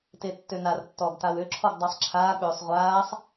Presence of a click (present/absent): present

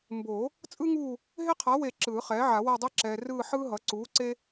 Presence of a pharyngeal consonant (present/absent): present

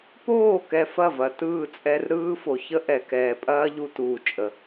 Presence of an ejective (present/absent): present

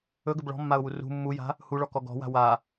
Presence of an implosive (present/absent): absent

